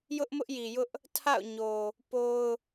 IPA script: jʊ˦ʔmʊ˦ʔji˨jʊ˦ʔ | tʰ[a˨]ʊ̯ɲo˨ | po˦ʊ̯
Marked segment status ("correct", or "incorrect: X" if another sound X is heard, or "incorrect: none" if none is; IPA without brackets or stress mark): incorrect: a̰˦˨